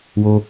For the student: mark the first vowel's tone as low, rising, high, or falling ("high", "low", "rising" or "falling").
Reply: high